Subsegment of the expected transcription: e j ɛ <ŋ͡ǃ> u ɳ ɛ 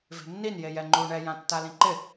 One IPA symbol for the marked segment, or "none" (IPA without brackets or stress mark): ŋ͡ǃ